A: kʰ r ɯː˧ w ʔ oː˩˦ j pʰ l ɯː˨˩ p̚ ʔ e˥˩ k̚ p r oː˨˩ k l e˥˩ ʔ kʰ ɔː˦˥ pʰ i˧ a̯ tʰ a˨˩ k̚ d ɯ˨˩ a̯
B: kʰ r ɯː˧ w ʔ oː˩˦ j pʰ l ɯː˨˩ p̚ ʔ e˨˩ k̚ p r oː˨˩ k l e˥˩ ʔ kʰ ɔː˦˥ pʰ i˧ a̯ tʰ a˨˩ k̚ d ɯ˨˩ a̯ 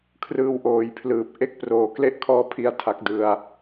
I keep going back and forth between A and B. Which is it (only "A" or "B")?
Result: A